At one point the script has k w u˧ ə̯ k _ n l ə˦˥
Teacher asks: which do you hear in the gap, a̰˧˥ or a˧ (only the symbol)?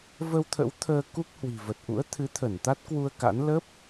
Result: a̰˧˥